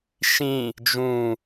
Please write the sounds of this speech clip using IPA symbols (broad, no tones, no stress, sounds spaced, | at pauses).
ʃ ĩ | d͡ʒ ũ